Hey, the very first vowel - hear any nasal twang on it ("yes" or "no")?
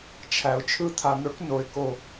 no